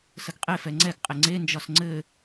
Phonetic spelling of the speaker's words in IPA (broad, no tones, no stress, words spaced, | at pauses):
səɡqʼe fɛŋ͡ǀɛɡ qʼɪŋ͡ǀe nd͡ʒɒsŋ͡ǀɘ